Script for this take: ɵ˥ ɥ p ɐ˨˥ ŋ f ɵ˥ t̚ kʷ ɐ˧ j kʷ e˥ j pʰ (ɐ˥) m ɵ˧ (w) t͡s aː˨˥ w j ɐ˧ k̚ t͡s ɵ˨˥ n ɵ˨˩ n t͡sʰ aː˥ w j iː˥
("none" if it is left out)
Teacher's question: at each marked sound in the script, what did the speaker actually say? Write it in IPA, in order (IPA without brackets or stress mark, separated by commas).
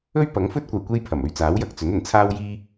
ɐ˨˩, ɥ